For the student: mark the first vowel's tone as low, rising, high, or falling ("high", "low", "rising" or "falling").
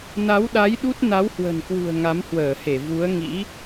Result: rising